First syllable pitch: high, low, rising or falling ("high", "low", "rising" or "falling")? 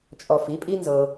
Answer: low